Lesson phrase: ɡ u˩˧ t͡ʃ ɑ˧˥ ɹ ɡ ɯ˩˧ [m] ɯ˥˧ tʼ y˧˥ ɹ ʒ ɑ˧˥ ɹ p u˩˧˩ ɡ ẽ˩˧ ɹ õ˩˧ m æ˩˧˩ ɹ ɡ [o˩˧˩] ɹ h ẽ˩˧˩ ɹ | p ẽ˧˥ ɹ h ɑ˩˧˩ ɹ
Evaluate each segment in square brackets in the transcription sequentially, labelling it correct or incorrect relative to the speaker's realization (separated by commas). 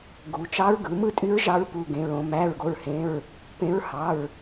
correct, correct